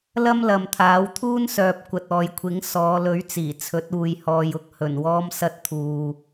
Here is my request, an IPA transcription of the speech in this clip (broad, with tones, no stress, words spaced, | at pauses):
lɐ˥mlɐ˨mt̪ʰaː˨˥w t̪ʰuː˥nsœː˨p̚ kʷɐ˨t̚ɔː˨jkʷʰɪ˨˥ŋ sɔː˨˧lɵ˨˥ɥt͡siː˨˩ t͡sʰɵ˨˥t̚uː˨jhɔː˨jʊ˨˥k̚ hɵ˨˩nwɔː˧m sɐ˧t̚t̪ʰuː˨